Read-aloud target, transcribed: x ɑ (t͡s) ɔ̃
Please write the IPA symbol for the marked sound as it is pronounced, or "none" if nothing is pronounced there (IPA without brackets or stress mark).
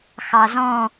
z